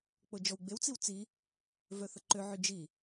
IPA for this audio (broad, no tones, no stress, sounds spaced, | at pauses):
k͡p o d͡ʒ ɔ w ɡ͡b e w t͡s i w t͡s i | v œ θ ə ǃ ø ʕ y d͡ʒ i